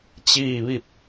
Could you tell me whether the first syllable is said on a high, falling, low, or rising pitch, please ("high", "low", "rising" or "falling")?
falling